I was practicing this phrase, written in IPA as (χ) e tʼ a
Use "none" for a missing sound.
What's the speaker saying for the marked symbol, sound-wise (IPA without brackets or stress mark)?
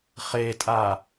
χ